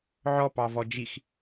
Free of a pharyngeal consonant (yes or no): no